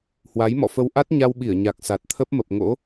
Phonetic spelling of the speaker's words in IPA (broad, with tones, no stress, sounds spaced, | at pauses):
h w a˨˦ j m ɔ̰˧˨ f ə˧ w ʔ a˦˥ t̚ ɲ a˧ w ɓ i˧˩ ə̯ ɲ a˨˩ k̚ s a˨˩ t̚ t̪ʰ ə˦˥ p̚ m ə˨˩ p̚ ŋ o̰˧˥